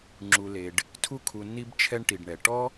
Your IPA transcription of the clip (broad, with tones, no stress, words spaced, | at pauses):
ŋ͡ǁu˩le˩ɖ | tʰu˧kʰu˩nːi˧bt͡ʃʰɛ˧ɳ ʈi˩ɖɳɛ˩ʈɔ˥